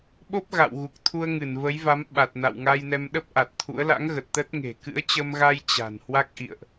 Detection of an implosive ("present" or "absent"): present